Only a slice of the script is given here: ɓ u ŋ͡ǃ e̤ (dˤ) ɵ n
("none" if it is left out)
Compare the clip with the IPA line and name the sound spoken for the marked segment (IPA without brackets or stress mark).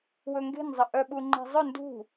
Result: zˤ